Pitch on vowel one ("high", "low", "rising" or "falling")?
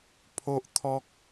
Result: high